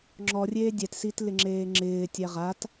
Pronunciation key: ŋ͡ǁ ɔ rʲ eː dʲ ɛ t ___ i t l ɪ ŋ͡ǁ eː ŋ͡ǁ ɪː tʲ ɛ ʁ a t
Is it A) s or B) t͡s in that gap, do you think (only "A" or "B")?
A